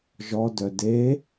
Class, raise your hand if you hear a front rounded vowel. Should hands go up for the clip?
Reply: yes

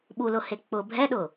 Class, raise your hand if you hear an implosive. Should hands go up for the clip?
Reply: yes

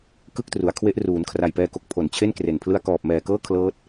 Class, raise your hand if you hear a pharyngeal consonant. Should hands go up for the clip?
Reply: no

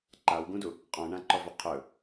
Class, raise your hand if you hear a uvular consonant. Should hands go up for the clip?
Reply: yes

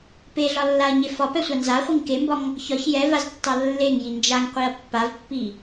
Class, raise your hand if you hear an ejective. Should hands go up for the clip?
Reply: no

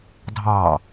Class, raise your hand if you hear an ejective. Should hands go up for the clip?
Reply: no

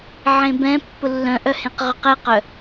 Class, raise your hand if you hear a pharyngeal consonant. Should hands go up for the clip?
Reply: yes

